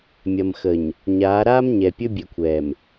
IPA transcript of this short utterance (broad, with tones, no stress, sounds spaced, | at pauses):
mʲ ɐ˨ m x ə˨ ɲ | ɲ aː˨˦ ɾ aː˦ m ɲ ɛ˨ pʲ ɵ˦ bʲ e˨ kʷʰ ɛː˨ m